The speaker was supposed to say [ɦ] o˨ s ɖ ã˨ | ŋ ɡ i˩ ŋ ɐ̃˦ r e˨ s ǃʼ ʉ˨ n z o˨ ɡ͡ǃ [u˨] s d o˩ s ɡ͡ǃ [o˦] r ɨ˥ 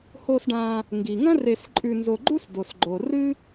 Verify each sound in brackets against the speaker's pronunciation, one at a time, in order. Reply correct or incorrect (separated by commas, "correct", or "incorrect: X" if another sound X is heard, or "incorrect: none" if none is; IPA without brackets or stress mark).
incorrect: h, incorrect: u˥, incorrect: o˩